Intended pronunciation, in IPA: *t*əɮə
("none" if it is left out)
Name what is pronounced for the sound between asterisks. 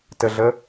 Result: t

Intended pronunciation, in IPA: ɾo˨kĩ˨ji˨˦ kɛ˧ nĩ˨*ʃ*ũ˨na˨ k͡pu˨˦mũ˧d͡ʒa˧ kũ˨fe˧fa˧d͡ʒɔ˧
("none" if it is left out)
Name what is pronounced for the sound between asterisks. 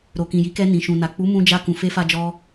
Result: ʃ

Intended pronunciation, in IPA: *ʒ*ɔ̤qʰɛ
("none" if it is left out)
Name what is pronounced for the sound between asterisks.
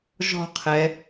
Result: ʒ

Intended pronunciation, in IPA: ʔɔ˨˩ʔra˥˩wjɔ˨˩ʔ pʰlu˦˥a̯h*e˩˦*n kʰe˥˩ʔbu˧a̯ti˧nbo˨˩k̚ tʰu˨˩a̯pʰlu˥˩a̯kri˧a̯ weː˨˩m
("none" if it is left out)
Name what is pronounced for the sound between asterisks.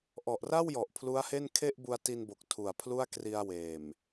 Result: e˥˩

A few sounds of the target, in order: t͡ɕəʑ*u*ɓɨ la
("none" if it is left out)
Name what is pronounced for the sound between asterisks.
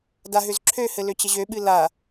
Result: ø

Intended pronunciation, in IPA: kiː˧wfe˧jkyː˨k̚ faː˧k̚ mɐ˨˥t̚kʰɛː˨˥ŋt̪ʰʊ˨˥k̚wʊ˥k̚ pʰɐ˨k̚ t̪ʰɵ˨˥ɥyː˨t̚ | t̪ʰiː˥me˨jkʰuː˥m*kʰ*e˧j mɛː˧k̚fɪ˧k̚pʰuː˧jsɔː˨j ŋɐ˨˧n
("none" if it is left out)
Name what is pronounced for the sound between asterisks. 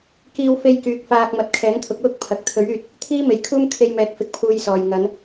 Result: kʰ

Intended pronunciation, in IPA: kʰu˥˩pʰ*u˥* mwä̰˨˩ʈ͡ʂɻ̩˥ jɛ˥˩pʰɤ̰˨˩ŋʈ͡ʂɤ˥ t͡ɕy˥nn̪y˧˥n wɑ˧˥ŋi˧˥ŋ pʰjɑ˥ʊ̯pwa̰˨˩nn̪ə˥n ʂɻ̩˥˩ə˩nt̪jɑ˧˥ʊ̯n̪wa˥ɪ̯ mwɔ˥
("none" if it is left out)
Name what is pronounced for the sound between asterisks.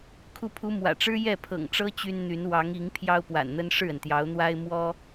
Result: u˥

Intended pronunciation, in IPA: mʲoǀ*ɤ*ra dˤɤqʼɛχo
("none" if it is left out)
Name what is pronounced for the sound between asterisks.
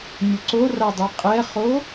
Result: o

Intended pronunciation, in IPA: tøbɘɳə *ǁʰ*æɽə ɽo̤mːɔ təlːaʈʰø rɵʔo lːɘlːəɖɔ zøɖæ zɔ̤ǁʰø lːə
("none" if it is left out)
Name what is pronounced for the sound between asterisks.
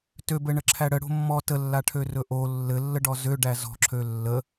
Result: ǁʰ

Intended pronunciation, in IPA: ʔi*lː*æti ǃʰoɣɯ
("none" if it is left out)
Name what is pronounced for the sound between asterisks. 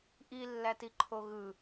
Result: lː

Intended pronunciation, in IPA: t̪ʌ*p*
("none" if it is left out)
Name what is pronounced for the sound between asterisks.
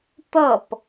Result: p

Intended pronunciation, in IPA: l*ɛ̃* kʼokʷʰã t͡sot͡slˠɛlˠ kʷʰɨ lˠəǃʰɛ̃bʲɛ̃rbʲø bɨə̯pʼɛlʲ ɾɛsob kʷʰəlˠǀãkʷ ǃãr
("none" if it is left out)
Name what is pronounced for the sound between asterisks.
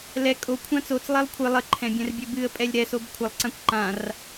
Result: ɛ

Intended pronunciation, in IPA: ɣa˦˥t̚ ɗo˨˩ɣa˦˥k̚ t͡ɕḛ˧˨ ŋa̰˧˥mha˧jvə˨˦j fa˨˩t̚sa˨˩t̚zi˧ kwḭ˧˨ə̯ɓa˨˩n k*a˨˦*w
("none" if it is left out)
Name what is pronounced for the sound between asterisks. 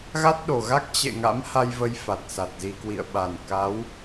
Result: a˨˦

